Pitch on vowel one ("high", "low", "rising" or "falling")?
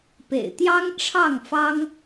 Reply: low